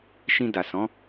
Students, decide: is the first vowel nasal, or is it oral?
nasal